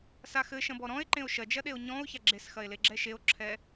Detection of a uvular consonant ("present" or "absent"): absent